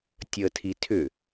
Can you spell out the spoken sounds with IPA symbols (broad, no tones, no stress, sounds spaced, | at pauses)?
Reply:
tʲ əː tʰ i tʰ ʏ